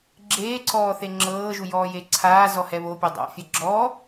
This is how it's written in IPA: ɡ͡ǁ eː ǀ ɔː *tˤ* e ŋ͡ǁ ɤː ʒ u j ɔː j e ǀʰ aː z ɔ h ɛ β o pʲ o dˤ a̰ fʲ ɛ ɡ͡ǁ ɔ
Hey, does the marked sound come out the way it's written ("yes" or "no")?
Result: no